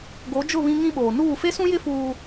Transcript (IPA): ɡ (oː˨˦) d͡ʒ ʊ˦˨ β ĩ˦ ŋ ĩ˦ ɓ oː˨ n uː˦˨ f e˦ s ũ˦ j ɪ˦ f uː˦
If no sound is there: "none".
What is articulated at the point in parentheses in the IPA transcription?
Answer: o˨˦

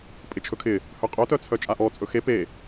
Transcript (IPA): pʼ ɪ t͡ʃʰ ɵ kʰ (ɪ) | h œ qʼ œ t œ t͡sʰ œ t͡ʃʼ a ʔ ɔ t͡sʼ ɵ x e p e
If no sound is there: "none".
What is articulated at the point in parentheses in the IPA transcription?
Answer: ɪ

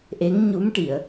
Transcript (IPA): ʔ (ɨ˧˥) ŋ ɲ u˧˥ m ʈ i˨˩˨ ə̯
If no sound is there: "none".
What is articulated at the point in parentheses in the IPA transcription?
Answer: e˧˥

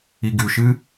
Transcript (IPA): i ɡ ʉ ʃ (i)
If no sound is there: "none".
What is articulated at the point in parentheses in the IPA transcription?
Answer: ɨ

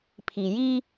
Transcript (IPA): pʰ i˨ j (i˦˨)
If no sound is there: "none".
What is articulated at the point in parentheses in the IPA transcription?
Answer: i˦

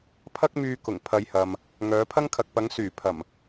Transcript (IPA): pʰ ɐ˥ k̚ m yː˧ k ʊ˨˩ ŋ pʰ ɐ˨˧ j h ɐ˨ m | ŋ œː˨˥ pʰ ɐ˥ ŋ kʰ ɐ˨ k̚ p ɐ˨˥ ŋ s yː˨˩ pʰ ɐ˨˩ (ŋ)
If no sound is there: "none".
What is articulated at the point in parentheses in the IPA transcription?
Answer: m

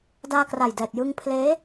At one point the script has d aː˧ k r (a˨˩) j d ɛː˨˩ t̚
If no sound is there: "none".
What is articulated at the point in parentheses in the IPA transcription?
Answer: a˨˩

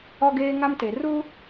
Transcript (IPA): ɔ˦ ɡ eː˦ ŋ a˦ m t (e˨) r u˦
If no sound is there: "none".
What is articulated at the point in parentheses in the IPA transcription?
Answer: e˨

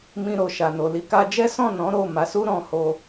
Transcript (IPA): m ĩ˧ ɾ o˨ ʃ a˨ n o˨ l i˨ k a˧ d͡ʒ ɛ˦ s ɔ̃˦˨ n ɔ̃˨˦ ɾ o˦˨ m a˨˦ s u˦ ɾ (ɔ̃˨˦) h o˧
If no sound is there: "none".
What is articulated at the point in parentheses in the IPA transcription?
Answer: ɔ̃˧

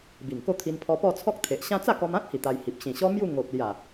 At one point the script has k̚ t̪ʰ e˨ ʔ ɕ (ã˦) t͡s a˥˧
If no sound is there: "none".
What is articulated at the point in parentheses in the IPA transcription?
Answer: ã˦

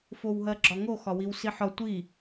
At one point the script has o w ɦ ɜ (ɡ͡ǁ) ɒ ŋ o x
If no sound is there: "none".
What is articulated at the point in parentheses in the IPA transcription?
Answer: ɡ͡ǁ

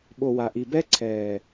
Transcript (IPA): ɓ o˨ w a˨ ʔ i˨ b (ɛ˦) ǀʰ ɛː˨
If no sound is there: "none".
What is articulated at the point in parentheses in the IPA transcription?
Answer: ɛ˦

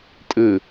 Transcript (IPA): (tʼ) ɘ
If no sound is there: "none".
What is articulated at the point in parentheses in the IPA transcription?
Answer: tʼ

